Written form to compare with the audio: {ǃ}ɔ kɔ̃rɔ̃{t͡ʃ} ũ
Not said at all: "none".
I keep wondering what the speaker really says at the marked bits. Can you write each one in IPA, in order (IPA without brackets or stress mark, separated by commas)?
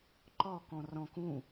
ǃ, k